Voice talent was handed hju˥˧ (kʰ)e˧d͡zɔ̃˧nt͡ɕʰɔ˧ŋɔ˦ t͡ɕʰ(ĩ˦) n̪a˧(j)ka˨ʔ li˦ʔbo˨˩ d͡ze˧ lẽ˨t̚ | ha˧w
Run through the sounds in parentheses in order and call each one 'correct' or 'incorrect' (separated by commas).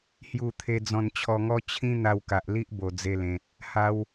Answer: incorrect, correct, incorrect